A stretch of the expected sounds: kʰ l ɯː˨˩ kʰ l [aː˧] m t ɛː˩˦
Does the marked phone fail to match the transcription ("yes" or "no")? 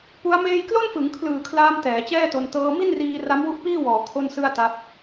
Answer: no